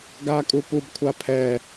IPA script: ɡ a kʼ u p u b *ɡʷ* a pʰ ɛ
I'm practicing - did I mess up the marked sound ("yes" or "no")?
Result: yes